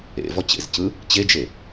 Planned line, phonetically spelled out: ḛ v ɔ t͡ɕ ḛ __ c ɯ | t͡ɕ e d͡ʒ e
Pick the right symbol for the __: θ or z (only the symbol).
z